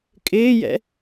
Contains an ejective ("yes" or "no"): yes